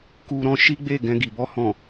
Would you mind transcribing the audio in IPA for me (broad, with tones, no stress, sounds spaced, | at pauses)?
k u˧ ɾ ɔ̃˧ ʃ i˦ ɡ͡b e˦˨ ɡ ɛ̃˧ ɡ i˨ b ɔ˧ h ɔ̃˨